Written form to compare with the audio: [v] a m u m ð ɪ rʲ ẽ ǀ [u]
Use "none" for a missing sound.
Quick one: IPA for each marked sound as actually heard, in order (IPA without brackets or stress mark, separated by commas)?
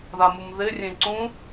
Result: ð, ũ